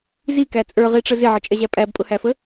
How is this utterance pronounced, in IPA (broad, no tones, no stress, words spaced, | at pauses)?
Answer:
zikæ t͡sʼə˞ʁiʈ͡ʂə zɪʕət͡ʃʼɛʑæ pʼæbpʼʊhæfə